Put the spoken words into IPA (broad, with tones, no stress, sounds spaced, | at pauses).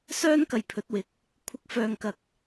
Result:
s œː˥ n k ɐ˧ j pʰ ɵ˨˥ t̚ w ɪ˨˥ k̚ | kʷʰ ɪ˧ k̚ f œː˧ ŋ k ɐ˧ k̚